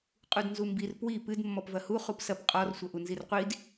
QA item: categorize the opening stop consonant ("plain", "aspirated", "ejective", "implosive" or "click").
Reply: ejective